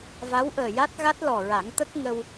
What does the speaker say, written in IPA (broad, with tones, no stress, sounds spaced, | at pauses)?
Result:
v a˧˥ w ʔ əː˨˩ j a˦˥ t̚ ɣ a˦˥ t̚ l ɔ˨˩ ɹ a˨˩˦ ŋ t̪ ə˦˥ k̚ ŋ ə˧ w